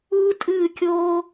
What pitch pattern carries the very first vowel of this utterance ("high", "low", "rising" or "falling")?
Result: high